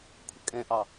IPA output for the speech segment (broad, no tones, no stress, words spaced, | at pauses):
kʷʰəkʼɛ̃ʔɑ